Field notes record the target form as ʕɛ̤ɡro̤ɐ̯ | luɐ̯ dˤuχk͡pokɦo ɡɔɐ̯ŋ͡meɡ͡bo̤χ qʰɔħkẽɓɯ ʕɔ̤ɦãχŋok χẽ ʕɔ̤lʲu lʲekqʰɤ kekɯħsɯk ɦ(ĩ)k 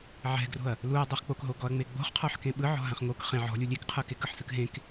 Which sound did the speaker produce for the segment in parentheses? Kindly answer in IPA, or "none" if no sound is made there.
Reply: ẽ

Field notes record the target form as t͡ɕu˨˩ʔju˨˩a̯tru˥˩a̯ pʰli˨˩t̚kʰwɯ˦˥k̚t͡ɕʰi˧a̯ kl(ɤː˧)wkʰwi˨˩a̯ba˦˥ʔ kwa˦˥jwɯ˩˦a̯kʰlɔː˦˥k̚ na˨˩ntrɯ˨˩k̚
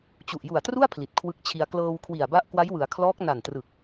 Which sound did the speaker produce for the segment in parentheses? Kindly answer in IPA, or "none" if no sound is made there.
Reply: ɤː˧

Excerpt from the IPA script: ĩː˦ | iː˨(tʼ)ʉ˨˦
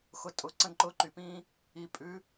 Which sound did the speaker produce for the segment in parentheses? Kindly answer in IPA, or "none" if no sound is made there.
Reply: pʼ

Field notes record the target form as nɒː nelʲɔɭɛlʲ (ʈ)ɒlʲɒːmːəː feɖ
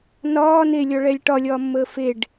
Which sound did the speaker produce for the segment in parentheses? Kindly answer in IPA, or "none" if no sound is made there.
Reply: ʈ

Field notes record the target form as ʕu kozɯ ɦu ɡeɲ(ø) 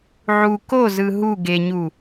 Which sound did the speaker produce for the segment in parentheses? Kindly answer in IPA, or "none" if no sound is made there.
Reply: u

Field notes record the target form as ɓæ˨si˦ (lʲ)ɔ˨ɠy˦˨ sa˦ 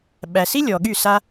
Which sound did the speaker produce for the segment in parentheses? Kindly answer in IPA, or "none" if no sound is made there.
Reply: lʲ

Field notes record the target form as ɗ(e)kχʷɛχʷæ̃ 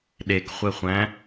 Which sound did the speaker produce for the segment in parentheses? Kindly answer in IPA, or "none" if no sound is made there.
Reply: e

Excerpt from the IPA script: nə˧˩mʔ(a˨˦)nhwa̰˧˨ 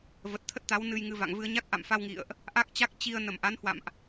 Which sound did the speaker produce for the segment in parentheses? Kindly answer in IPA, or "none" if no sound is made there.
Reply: a˨˦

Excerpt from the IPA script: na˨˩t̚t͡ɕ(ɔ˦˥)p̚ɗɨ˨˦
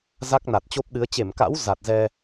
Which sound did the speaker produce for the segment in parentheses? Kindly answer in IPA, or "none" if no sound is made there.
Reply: o˦˥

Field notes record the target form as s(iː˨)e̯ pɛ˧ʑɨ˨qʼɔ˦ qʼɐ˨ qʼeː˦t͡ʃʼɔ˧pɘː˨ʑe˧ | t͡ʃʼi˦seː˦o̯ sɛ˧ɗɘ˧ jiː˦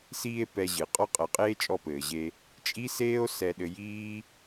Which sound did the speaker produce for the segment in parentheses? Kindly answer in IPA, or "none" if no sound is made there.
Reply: iː˧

